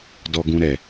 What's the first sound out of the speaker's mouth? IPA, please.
d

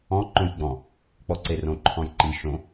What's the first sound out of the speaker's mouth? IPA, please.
ɔ̃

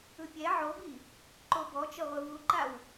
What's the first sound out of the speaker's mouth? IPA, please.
ɯ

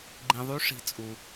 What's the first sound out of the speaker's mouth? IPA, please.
ɡ͡ǃ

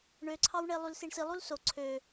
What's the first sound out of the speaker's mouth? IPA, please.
ɳ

